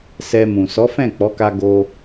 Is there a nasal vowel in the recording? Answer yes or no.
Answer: yes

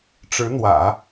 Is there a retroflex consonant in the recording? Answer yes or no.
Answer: yes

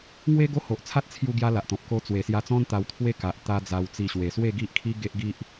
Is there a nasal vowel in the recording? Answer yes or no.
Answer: yes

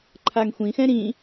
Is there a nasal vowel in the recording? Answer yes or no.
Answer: yes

